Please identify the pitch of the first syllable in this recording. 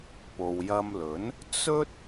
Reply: low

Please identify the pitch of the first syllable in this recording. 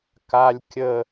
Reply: high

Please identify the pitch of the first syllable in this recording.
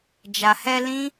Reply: low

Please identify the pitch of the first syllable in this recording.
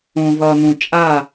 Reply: low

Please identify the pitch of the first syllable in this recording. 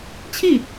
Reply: falling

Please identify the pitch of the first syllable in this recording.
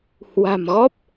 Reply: low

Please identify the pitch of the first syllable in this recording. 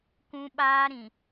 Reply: high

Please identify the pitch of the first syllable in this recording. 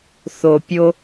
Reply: low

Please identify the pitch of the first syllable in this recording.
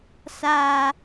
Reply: low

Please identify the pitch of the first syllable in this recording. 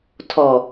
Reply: low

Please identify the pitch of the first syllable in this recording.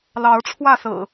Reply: rising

